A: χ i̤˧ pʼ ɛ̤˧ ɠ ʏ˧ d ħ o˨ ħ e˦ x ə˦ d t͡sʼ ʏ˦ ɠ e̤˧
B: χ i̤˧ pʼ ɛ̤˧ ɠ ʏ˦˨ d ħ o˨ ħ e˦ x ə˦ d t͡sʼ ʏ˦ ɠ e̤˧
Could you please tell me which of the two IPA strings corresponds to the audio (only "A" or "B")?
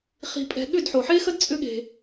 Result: B